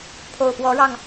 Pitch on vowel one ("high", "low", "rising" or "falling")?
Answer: low